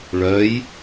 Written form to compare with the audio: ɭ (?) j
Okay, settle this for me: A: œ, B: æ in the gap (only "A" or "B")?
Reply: A